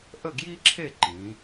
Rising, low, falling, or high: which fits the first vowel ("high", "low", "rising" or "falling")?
falling